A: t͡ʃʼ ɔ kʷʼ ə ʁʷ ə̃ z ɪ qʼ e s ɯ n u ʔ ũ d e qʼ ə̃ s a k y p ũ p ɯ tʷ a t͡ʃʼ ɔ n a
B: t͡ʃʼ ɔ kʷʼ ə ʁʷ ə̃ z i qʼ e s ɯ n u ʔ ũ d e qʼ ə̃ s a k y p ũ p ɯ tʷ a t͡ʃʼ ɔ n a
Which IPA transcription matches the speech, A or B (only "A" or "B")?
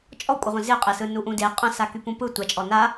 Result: A